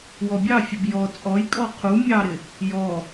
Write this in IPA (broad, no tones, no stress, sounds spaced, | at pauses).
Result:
w ɔ bʲ ɑ fʲ ə b j ɔ t͡sʼ ɔ j kʼ ɔ qʰ u mʲ ɑ ɾ ɪ | j ɔ